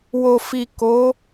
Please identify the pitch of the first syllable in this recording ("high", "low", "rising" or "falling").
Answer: low